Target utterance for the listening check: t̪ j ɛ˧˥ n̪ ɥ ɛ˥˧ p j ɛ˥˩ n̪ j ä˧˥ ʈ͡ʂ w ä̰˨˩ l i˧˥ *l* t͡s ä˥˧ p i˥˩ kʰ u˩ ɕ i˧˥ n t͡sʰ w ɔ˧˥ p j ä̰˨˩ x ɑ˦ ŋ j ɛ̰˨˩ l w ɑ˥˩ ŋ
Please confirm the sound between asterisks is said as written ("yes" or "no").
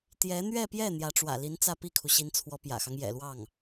no